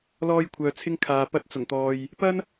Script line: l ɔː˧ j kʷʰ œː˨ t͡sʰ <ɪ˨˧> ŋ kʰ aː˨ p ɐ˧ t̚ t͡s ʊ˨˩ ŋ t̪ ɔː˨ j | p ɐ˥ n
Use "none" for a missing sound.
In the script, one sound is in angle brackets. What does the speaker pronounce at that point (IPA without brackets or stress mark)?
ɪ˧